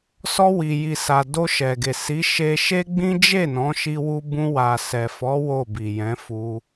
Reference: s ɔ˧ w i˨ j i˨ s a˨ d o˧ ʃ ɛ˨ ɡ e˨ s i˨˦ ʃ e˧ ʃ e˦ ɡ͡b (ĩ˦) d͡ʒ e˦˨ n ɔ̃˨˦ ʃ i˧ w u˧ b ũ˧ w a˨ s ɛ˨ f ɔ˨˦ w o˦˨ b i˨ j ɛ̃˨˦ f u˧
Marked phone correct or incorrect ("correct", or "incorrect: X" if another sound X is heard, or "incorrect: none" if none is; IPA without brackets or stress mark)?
correct